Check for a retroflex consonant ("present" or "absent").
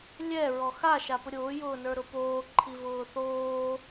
absent